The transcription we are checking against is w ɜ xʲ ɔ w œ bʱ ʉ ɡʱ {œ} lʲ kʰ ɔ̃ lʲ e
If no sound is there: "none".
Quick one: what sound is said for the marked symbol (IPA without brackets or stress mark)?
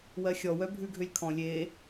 ø